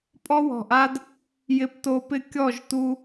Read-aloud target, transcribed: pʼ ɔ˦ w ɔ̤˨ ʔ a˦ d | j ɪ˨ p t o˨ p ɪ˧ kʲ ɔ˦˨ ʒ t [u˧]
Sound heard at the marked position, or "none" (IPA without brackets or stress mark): u˧